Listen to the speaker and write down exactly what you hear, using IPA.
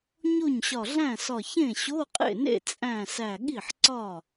ɲo˥˩ɲɕɒ˧˩ɮæ̃˥˩sɒ˧˩ çẽ˥˩ɕo˧˥˧qʼḛ˥˩nḛ˥˩ t͡sʼæ̃˧˩ sæ˧˩ɠi˥˩ħǀɒ˥˩

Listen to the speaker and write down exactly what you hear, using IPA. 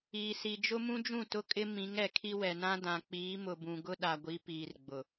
iː˨si˨ d͡ʒʊ˦mũ˦d͡ʒũ˦˨ tʊ˦kʼɪ˦ mĩ˨˦ŋɛ˨kʰi˦ wɛ˨nã˦ dã˨k͡piː˨˦mʊ˨bũ˨ ɡʊ˦ɗa˨ɡʷi˨˦ piː˨rɡ͡bʊ˨

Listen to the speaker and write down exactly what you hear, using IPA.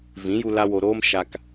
vĩ˨˦ju˧la˧ wo˨ɾoː˧m ʃa˨k

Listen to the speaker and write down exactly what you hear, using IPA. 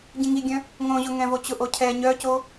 ɟĩŋiɡʲœ̃ | ŋõʑʊ ŋɛ̃vot͡ɕʊʔo cʰɛ ɲœco

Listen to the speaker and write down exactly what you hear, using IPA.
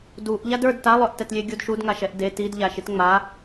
duʔ ʎadə˞d talˠœʔtɛtlʲe ɡʲudʃudŋa ʃɛʔde tidʎaʃit ŋ͡ma

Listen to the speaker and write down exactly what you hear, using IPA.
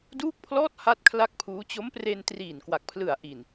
duː˥˩k̚pʰlɔː˥˩t̚ ha˥˩t̚kʰla˥˩k̚pʰuː˦˥ t͡ɕo˦˥mpre˧n triː˨˩nkwa˨˩k̚pʰlɯ˨˩a̯ʔi˨˩n

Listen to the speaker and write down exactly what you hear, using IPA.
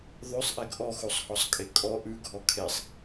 ðˤʉsˤʔɛɡ ʔɔxusˤhɔsˤkʼe kʼɔ ʔʉɡʱɔ kʰesˤ

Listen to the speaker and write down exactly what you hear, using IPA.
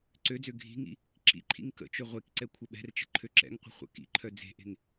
ǀød͡zø ɡʱi̤ŋḭ | ǁḭǃʰḭŋ kə̰t͡ʃø ʁʷekǀɛ kʷʰəɓɛ̤rt͡ʃə̤ ǃʰøǁɛ̰ŋqʷə̤ χʷə̰ kḭǃʰœ d͡ze̤ʔe̤ŋ

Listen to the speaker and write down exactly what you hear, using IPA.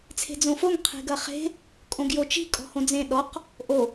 t͡sʰe̤d͡zõfoŋ qʰe̤ɡɐχe̤ | kʼõɡjot͡ʃi̤ kʼɔ̤hõd͡zẽ ɗɔq | ʔo

